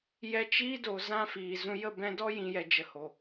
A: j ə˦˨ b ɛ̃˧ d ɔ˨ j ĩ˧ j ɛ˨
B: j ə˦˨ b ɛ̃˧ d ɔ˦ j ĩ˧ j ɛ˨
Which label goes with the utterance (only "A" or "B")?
B